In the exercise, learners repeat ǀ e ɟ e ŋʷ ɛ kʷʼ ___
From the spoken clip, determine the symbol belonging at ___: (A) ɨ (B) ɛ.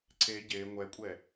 B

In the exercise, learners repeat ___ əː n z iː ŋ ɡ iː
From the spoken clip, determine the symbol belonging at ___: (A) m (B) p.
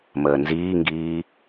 A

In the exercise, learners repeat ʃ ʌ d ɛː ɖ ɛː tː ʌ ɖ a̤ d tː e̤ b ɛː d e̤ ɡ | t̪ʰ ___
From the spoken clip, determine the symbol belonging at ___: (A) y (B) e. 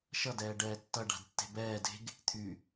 A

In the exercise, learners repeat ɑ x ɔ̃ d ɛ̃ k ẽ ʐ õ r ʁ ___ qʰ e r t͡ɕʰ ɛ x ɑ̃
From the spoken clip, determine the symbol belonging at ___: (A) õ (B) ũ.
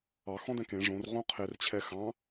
A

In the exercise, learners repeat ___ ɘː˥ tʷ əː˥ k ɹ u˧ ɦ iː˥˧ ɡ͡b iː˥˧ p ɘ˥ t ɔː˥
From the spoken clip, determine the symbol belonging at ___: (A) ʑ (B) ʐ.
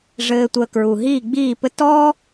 B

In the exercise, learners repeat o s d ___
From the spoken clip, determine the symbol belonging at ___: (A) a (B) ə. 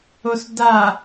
A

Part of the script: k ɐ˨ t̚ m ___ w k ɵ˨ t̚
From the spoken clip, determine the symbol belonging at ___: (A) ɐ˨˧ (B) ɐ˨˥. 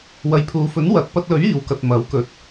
B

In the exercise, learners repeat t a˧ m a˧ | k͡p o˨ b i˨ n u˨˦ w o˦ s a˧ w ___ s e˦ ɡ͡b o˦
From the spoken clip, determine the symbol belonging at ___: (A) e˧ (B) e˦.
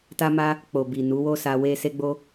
B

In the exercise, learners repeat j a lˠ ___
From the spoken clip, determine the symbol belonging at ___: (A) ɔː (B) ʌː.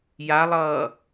B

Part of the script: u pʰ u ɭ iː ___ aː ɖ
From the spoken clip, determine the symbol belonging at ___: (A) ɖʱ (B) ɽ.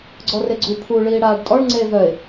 B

